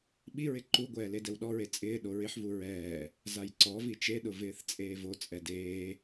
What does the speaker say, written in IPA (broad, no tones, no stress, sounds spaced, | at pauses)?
ɓ i ɹ ɪ ǃ u ɡʷ ɛː l e d ɛ w ɗ ɔ ɹ e t͡sʼ ɪː ɗ o ɹ ɪ ħ v u ɹ ɛː | z a j ǀ ɔ v i t͡ʃ e ɗ ʊ v ɪː θ t͡sʼ eː v o t͡sʼ ɛ d eː